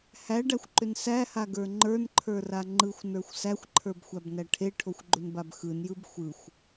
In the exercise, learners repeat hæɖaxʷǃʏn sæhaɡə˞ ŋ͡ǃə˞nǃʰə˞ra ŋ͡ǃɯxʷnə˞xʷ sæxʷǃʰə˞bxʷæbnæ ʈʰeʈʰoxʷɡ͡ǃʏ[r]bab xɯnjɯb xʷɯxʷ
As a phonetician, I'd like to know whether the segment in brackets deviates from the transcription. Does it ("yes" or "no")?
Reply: yes